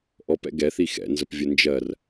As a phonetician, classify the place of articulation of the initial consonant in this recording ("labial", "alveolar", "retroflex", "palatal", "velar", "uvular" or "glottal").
glottal